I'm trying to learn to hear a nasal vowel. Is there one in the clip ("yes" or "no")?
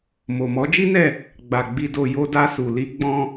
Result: yes